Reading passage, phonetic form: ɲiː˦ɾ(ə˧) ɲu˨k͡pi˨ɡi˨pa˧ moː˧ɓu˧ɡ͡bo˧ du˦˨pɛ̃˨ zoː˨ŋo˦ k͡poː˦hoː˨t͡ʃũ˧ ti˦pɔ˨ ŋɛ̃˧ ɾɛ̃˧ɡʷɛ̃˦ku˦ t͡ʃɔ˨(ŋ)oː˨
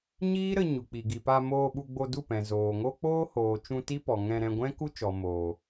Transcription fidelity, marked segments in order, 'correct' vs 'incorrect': correct, incorrect: m

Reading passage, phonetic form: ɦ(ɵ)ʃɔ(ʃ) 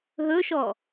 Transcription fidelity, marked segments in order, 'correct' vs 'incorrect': correct, incorrect: none

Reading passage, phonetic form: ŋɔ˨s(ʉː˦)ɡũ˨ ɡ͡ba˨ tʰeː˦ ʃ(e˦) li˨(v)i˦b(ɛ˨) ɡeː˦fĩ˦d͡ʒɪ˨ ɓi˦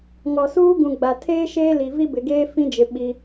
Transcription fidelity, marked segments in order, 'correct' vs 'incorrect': incorrect: uː˦, incorrect: eː˦, correct, incorrect: ɪ˨

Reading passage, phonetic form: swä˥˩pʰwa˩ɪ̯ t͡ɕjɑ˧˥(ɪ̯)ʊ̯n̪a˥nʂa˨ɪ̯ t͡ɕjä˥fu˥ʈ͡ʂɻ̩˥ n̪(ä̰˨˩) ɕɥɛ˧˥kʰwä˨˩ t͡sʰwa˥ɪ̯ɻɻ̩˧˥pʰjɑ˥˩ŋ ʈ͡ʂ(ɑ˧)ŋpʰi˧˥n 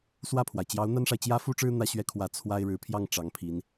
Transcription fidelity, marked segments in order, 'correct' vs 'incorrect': incorrect: none, incorrect: ä˧˥, incorrect: ɑ˧˥

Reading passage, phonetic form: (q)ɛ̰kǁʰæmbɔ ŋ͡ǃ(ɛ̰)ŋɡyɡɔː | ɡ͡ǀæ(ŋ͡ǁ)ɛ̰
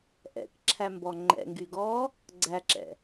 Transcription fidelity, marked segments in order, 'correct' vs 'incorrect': incorrect: ʔ, correct, incorrect: ǁ

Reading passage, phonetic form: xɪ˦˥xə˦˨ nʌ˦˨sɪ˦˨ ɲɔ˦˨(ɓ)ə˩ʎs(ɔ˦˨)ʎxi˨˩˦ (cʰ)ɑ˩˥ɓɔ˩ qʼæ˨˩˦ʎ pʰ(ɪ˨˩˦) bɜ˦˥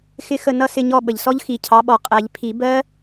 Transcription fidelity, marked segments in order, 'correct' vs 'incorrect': correct, incorrect: ɔ˦˥, correct, incorrect: i˨˩˦

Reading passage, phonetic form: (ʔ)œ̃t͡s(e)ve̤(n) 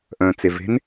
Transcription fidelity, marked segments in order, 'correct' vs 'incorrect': correct, correct, correct

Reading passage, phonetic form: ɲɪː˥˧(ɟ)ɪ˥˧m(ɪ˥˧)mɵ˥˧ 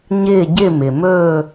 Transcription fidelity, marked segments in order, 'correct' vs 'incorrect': correct, incorrect: ɪ˨

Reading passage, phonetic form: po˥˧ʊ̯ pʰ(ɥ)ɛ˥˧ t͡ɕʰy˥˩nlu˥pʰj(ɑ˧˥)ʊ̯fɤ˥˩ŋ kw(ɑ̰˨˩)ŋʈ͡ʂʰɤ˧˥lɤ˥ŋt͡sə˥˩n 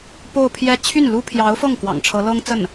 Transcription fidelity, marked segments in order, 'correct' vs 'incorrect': incorrect: j, correct, correct

